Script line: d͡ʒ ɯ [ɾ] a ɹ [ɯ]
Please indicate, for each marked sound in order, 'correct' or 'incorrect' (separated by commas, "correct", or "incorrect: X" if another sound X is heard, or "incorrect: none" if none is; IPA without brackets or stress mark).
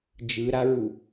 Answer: correct, incorrect: u